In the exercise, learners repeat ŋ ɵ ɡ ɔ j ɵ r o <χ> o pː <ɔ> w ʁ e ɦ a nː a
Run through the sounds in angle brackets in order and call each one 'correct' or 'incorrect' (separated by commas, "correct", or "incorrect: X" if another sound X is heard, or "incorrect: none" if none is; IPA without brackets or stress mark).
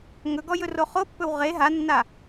correct, incorrect: ɵ